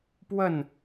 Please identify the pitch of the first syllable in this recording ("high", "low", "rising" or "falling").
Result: falling